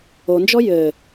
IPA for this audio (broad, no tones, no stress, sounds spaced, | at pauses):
o n d͡ʒ ɔ j ɘ